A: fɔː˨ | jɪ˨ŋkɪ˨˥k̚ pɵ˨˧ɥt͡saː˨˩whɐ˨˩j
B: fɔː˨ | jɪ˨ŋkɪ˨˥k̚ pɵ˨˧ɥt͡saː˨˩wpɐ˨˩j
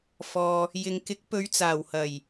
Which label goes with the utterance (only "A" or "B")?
A